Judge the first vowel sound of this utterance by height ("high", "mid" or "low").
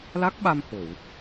low